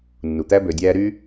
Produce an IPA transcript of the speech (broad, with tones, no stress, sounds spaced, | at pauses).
nː u˩ t̪ æ˦ b ø˨ dʲ æː˦ ɾ y˥